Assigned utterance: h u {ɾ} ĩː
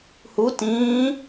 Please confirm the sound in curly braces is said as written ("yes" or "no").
no